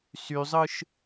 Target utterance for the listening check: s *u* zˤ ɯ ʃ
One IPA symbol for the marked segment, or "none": y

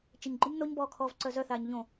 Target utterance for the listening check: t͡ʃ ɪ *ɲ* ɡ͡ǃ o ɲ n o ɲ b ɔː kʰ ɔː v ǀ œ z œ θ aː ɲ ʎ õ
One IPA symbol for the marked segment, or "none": ɲ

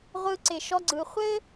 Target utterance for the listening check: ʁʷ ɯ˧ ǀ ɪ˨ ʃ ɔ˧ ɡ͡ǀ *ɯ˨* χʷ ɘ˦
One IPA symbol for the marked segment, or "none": ɯ˨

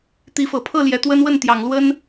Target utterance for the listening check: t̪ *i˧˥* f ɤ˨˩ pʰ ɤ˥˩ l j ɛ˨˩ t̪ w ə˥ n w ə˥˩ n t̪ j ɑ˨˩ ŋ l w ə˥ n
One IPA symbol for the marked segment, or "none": i˧˥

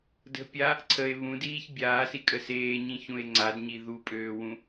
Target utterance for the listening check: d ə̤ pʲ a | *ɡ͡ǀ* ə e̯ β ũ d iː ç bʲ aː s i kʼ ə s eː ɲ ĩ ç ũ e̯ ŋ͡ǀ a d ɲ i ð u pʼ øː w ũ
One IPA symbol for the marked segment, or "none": ǀʰ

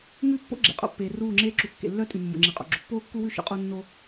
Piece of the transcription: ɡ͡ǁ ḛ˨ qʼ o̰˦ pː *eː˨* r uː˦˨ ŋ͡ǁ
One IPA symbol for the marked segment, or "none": eː˨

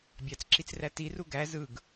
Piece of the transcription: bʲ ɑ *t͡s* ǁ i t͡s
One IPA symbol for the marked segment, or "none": t͡s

